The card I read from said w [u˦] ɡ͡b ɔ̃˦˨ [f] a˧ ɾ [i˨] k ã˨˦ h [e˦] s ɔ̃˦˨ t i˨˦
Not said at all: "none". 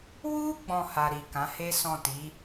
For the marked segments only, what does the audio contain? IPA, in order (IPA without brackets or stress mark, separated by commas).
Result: u˦, h, i˨, e˦